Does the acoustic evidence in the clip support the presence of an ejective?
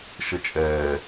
yes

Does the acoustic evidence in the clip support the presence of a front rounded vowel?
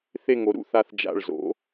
no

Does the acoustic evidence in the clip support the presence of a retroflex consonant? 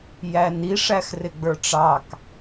yes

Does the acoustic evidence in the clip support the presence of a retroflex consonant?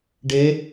yes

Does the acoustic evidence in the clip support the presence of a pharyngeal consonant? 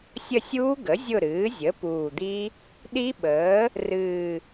no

